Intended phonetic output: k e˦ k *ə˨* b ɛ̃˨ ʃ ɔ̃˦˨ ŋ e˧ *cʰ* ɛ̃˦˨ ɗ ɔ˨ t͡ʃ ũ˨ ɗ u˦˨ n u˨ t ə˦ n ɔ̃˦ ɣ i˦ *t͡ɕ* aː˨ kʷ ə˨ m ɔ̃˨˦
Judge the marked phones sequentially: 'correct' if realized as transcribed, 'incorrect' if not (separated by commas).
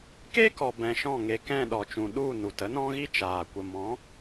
incorrect, incorrect, incorrect